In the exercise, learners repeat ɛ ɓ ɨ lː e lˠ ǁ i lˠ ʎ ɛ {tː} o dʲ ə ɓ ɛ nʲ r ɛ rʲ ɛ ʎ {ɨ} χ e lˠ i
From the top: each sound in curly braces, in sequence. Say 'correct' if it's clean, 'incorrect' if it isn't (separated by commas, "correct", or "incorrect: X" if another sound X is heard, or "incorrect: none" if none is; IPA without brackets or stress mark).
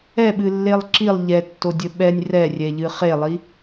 correct, correct